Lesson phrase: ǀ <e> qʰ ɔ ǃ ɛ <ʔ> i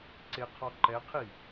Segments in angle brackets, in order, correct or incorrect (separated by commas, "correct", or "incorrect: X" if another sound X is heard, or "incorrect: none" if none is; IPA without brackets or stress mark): correct, incorrect: qʰ